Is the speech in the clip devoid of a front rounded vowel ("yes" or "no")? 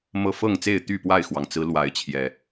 no